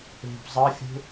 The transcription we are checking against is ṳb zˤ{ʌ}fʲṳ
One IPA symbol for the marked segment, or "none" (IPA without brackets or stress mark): ʌ